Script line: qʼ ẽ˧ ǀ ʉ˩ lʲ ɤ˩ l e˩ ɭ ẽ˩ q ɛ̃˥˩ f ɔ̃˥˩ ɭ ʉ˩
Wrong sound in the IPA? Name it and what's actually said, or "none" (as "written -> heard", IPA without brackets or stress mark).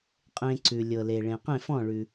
ɛ̃˥˩ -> ẽ˥˩